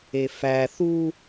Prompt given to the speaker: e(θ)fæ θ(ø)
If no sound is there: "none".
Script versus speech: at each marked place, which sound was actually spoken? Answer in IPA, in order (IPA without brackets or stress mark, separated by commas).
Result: none, u